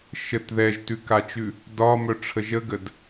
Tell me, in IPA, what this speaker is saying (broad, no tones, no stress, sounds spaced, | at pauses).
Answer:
ʃ ə t ð ɛ ʒ t ʉ k a t͡ʃ ʉ | d ɒ m œ ʈ͡ʂʰ ə ʒ ə ɡ ə d